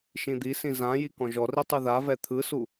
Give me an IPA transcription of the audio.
ʃ ĩ d̪ i s ĩ z ã j i k ɔ̃ ʒ ɔ r i tˤ ɯ ð a v ɛ t̪ʰ ɯ s u

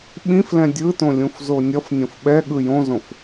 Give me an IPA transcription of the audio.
ɓ ĩ f l ɛ̃ dʲ ɯ t õ lʲ ũ f z o nʲ ʌ f nʲ õ f ɓ ɛ ɠ ɯ j õ z õ f

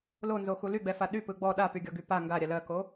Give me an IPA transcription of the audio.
l o n z o x u l y ɡ͡b ɛ f a ɗ y p ɯ ɡ͡b ɔ ɗ a p y ɡʲ ɔ ɡ y p a ŋ ɡ a ɾʲ a l ɜ k o

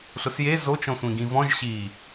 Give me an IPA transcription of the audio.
ɬ ʊ s j e z o t͡ʃ ɔ̃ sʷ ĩ ɡ ĩ v ɔ̃ ʒ ɕ i

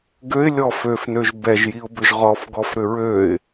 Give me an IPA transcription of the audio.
ɡ ø ɪ̯ lʲ ɔ f ø f n ø ʒ b ɛ ʒ j i ʊ̯ b ʏ ʒ ʁ ɔ f ɡ ɔ f ɾ ʏ ɹ ø ɪ̯

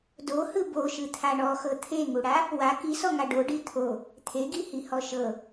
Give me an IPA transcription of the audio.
d o h ɯ b o ʃ ɯ t̪ʰ a ɳ ɔ x ɤ t̪ʰ e ŋ u ɽ a | w a k i s ɔ ŋ a ɖ o ɖ i t̪ʰ o | t̪ʰ e ɡ i h i h ɔ ʃ ɤ

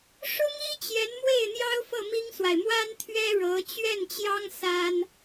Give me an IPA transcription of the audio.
ʂ ʊ˥ ŋ i˥ t͡ɕ j ɛ˧˥ n m w e˥˩ ɪ̯ n̪ j ɑ˥ ʊ̯ f ɤ˥˩ m i˥ ŋ s w a˨ ɪ̯ m w a˥ n t̪ʰ ɥ ɛ˥ ɻ ɤ˧˥ t͡ɕ ɥ ɛ˥˩ n t͡ɕ j ɑ˥ ŋ s a˥ n

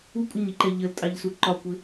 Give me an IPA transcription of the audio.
u kʷʼ ə ɲ i ǃ ɛ ʎ ə l tʼ ɑ ʎ s u ǃ ɒ kʷ ɪ

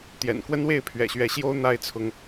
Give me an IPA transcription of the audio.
t̪ j ɛ̰˨˩ n k w ə˦ n w e˥˨ ɪ̯ pʰ ɥ ɛ̰˨˩ ɕ ɥ ɛ˨˦ ɕ j o˦ ʊ̯ n̪ a˨˦ ɪ̯ t͡sʰ ʊ˨˦ ŋ

